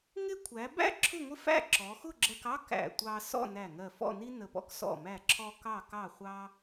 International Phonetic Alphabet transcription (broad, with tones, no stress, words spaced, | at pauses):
ŋɪ˥ kʷʰæ˩˧bæ̰˥ ǁʰʊ˥˧ŋʷɪ˥fæ̰˥˧ ǁɔ˩˧xʊ˥˧ɡ͡ǁɜ˧kɑ˥ kæ̰˧˩ tʷɑ˧ sɔ̰˥˧næ˧˩ ŋɜ˧˩fɔ̰˥˧ni˥ nə˧˩pɔ̰˥k sɔ̰˧˩mæ˧˩ǁʰɔ˧ kɑ˥˧kɑ˥˧χʷɑ˥